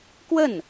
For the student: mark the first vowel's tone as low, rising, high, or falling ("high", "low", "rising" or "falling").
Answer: falling